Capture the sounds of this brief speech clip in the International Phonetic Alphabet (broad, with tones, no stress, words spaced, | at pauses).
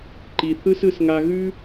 ǃi˧θɯ˥s ɯ˥sŋa˥ ɣʉ˥